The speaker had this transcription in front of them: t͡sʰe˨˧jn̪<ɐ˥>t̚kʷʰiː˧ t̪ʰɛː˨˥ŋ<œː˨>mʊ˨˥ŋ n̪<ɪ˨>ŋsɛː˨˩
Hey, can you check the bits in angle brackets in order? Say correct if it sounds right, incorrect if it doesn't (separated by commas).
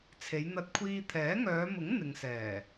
incorrect, incorrect, correct